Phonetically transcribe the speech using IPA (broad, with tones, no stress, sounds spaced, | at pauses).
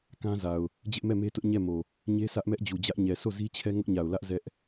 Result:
k ã˦ z a˨ ʊ̯ | d͡ʑ ɪ˦ ʔ m ɛ˦˨ m e˦ t ʊ˦ ʔ ɲ ɛ˦˨ m o˨ | ɲ e˦ sʰ ä˦ ʔ m ɛ˦ ʔ d͡ʑ u˨ d͡ʑ ä˦ ʔ ɲ ɛ˨ sʰ o˦˨ z i˦ t͡ɕʰ ɛ˦ ŋ ʊ˦ ʔ ɲ a˨ ʊ̯ l ä˦ ʔ z ɛ˦ ʔ